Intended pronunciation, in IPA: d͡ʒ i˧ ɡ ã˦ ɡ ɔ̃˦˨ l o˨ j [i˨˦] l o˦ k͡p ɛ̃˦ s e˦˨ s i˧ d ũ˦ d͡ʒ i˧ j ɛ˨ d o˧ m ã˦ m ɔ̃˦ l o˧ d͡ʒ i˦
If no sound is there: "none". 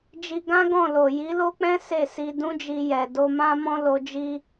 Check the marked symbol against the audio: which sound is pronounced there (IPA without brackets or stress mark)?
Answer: i˨˦